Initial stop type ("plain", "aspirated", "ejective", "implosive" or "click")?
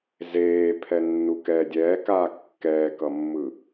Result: aspirated